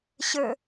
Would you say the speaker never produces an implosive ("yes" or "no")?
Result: yes